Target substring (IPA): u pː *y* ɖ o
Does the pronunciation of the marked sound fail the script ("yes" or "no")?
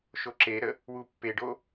yes